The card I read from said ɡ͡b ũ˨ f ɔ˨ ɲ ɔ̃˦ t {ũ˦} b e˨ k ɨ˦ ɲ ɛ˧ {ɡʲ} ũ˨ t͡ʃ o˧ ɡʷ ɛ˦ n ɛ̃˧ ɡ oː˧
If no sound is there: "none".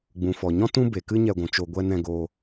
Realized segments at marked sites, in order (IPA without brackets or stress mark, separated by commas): ũ˦, ɡʷ